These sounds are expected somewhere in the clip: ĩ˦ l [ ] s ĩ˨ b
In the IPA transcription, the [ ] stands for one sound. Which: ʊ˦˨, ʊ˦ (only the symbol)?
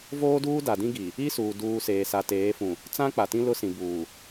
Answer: ʊ˦